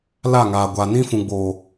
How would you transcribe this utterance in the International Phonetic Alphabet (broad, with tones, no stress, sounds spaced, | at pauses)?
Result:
l a˦˨ ŋ aː˨ ɡʷ a˨ n ĩ˦ f ũ˨ ɡ͡b oː˨